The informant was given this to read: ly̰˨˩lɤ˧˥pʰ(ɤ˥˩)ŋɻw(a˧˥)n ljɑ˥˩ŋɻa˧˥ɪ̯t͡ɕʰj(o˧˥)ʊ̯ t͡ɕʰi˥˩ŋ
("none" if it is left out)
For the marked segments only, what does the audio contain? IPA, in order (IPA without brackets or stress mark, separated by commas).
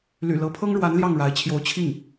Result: ɤ˥, a˧˥, o˧˥